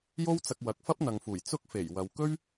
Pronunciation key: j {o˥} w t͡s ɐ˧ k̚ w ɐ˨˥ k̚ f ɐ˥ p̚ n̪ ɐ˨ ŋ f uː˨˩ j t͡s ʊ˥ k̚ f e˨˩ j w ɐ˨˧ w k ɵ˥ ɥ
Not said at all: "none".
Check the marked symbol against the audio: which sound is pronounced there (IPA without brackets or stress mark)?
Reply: o˥